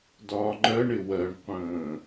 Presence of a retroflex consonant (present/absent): present